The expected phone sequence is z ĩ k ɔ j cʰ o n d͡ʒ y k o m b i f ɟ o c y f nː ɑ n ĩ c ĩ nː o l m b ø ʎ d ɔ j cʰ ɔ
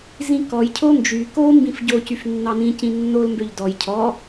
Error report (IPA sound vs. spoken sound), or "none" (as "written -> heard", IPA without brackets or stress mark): i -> ĩ